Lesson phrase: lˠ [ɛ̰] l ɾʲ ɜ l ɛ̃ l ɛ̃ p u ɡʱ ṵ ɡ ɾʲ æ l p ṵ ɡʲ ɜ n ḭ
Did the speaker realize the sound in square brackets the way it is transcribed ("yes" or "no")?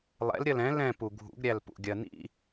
yes